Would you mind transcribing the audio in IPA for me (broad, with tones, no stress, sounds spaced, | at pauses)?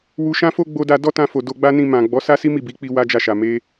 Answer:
w u˧ ʃ ã˦ f o˦ ɡ͡b o˧ d a˧ d ɔ˦ t ã˧ f o˨ d o˧ ɡ͡b a˦ n ĩ˧ m ã˨ ɡ͡b ɔ˨˦ s a˦ s i˦ m i˦˨ b i˨˦ k͡p i˧ w a˦ d͡ʒ a˦˨ ʃ a˨ m e˧